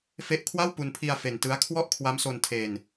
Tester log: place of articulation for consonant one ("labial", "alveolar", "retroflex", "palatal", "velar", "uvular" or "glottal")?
labial